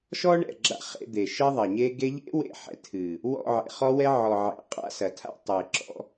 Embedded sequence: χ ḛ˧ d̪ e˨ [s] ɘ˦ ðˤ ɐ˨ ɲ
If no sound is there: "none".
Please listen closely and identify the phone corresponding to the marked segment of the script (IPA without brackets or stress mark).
ʃ